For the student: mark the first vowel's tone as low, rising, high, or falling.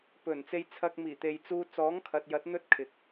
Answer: low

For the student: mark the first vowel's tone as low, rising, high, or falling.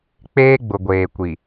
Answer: high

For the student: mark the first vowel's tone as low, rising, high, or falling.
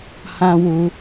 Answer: high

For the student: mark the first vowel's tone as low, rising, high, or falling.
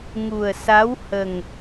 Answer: low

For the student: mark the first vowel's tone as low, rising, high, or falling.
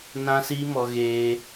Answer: high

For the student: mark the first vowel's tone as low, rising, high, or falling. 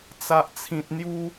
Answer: low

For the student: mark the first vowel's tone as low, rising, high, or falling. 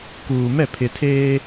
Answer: low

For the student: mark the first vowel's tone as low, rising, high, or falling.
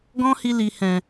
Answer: high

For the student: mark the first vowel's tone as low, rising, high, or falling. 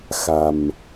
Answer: low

